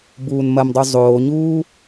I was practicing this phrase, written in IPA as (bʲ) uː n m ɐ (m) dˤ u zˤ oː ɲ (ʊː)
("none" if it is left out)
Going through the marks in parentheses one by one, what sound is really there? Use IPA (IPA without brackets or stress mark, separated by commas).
b, m, uː